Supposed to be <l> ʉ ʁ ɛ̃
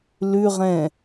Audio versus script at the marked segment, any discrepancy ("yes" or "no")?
no